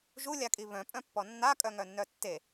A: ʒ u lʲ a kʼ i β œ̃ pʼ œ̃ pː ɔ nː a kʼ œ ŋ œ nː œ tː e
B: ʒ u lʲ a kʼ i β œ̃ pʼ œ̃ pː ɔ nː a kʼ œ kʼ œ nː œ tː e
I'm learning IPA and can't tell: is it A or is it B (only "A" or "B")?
A